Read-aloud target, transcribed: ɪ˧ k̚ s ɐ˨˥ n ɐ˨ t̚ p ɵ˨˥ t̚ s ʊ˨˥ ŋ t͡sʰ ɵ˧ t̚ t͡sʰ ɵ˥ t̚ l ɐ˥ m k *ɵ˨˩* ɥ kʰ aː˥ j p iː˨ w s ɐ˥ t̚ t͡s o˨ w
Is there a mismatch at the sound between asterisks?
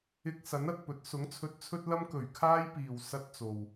no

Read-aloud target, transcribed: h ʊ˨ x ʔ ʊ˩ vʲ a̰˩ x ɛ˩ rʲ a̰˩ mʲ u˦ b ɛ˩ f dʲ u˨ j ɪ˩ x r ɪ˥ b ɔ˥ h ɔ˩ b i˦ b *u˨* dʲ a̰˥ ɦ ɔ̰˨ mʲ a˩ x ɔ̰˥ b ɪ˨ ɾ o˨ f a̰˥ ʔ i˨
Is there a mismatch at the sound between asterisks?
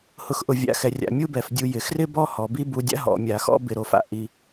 no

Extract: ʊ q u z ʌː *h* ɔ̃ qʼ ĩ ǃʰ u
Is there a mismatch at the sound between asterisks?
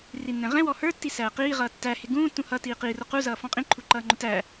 yes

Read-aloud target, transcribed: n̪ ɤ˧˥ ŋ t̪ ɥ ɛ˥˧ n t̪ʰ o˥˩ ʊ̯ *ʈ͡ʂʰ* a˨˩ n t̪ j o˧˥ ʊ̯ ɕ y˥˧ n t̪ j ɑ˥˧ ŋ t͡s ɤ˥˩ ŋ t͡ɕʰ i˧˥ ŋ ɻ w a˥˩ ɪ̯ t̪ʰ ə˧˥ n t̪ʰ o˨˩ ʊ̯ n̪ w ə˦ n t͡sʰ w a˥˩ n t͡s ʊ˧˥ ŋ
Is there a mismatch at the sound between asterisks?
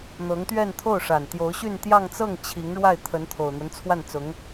yes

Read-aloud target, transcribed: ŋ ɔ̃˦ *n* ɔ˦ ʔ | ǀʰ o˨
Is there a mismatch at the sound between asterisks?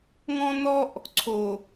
no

